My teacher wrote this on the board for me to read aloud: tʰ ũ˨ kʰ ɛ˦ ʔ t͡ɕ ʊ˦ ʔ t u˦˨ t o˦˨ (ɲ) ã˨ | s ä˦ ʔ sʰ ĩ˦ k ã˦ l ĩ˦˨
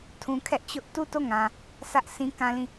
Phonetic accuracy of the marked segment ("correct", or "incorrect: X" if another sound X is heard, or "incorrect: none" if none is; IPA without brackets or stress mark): incorrect: ŋ